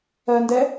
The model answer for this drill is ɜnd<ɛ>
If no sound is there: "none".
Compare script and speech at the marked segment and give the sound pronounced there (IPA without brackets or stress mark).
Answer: ɛ